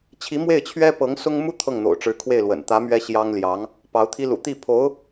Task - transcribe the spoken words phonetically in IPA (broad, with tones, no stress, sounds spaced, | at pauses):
t͡ɕʰ i˧˥ m w e˥˩ ɪ̯ t͡ɕʰ ɥ ɛ˥ p ɤ˧˥ ŋ s ʊ˥ ŋ m u˥ t̪ʰ ɤ˥˩ ŋ n̪ o̰˨˩ ʊ̯ ʈ͡ʂ ɻ̩˧˥ kʰ w e˥˩ ɪ̯ l w ə̰˨˩ n t̪ ä˧˥ m ɥ ɛ˥ ɕ j ɑ˥ ŋ l j ɑ˧˥ ŋ | p ɑ˧˥ ʊ̯ t̪ʰ i˥ l ṵ˨˩ t̪ i˥˩ pʰ o˧˥ ʊ̯